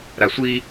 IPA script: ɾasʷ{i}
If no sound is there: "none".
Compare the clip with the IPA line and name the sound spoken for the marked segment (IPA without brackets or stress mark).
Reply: i